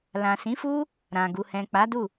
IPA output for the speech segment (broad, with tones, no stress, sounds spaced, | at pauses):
l ã˨ s ĩ˨˦ f u˦ | ɾ ã˨ ɡ u˨ h ɛ̃˨ k͡p a˨˦ d u˦˨